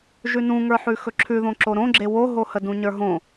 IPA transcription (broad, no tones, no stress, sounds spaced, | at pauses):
ʒ ʉ n ũ ŋ ə˞ ħ ʉ x ɵ ǁʰ ʉ ð õ ǁ o ɾ õ ɡ͡ǁ e w o ɦ o h ə d ũ ɲ ə˞ ɦ õ